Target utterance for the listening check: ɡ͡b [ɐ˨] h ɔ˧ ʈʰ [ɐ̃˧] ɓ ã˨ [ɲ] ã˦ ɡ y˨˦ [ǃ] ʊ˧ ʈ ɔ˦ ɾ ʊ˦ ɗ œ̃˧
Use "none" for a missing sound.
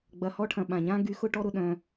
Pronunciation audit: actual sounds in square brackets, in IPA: ɐ˨, ɐ̃˨, ɲ, x

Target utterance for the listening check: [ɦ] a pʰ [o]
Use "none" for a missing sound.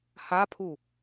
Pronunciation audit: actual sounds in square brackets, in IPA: h, u

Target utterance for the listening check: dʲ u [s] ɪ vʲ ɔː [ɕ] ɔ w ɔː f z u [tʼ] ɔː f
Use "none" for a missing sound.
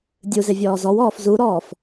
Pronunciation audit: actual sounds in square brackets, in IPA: z, z, ɾ

